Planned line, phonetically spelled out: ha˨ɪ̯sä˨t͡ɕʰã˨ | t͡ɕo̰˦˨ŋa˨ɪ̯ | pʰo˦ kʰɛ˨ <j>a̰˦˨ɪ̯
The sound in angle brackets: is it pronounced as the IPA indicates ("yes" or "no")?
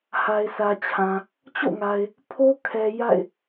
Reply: yes